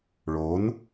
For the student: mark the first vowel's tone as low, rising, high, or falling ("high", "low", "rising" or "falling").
rising